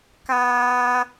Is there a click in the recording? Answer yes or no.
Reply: no